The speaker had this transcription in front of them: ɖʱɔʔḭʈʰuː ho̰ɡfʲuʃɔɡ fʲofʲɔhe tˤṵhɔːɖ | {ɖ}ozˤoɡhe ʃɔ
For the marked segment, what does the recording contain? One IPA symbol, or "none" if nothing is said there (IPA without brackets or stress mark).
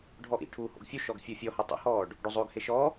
ɖ